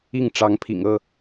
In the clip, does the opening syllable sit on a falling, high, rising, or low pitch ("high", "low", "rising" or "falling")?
falling